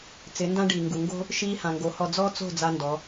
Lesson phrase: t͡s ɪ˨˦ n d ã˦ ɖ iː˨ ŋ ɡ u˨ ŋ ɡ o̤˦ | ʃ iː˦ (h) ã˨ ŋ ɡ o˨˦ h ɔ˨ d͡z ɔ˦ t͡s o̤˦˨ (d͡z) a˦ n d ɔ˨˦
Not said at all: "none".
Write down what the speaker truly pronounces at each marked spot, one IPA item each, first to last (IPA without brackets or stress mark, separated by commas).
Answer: h, d͡z